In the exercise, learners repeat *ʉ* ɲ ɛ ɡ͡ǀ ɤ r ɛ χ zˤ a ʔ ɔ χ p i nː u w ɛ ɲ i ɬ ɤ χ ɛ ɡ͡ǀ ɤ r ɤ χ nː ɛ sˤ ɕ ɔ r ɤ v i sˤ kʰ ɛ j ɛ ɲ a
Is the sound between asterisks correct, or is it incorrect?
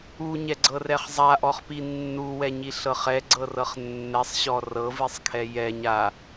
incorrect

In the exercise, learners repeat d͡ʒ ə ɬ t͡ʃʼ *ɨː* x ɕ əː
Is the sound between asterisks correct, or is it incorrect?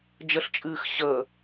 correct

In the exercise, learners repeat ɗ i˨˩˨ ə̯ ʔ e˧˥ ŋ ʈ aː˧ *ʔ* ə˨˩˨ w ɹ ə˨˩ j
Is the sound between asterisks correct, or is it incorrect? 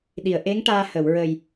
incorrect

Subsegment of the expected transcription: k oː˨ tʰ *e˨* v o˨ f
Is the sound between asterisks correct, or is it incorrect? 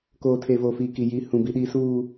correct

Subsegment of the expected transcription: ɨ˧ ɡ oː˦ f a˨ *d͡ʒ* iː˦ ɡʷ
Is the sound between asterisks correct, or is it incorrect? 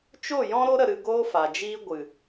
correct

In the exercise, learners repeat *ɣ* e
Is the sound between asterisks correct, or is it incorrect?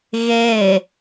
correct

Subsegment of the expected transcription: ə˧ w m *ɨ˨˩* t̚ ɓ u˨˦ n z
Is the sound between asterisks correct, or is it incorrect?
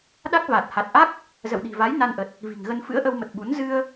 incorrect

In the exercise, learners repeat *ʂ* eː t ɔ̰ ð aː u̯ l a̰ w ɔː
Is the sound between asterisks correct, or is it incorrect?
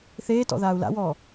incorrect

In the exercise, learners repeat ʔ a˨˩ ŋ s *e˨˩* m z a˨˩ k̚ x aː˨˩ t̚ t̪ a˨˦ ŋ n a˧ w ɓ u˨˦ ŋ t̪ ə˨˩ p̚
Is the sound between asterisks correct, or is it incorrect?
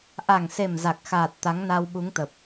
correct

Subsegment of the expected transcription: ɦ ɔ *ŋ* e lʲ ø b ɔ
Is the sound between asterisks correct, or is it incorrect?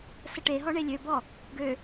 incorrect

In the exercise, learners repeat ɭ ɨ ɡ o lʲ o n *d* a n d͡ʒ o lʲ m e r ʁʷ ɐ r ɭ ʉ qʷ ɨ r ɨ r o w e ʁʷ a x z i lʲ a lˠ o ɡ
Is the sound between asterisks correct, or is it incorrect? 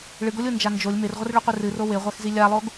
incorrect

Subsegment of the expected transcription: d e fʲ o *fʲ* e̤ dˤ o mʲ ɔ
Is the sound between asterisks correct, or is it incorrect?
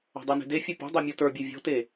incorrect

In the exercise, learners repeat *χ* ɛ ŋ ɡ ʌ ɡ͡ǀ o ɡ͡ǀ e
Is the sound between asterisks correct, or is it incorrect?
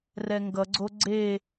incorrect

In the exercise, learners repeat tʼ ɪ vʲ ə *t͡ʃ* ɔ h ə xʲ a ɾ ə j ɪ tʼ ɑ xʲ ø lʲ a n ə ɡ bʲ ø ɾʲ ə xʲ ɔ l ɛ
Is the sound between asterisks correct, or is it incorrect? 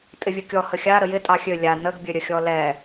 incorrect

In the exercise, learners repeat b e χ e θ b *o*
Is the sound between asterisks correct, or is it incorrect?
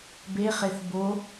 correct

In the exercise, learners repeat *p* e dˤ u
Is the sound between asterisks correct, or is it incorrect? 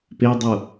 correct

